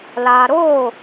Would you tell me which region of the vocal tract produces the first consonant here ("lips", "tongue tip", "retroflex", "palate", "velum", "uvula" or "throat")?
tongue tip